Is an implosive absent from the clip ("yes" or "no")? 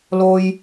yes